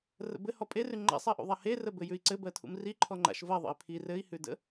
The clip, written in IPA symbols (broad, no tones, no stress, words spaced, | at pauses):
rə̰bɘhɔ pʼerʉ ŋ͡ǃa̰sˤɜʔṵðˤa herə bɘjʉi̯ǀɘ bɜtʰṵmri ǃʰɔŋ͡ǃa̰ʃ vɜ ðˤə̰i̯pʰi rɘi̯hʉdə̰